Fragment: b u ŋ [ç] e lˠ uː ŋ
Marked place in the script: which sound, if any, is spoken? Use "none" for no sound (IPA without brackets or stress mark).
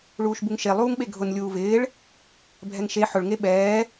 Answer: ʃ